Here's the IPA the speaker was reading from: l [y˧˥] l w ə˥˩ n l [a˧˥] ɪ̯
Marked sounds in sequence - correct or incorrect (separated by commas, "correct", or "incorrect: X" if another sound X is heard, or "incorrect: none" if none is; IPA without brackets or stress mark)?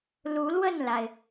incorrect: u˧˥, incorrect: a˩